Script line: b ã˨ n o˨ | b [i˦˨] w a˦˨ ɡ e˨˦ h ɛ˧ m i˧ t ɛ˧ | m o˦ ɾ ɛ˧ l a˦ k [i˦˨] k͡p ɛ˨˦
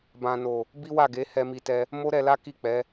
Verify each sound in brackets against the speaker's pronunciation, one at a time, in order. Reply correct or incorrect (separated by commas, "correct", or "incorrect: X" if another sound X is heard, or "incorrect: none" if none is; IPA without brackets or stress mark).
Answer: incorrect: i˦, correct